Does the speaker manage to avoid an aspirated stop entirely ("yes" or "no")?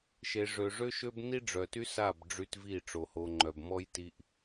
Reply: yes